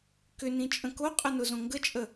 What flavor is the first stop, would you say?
plain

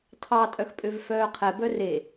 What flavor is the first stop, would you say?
aspirated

